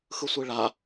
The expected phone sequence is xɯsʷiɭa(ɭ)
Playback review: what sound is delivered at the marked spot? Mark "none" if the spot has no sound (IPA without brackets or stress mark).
none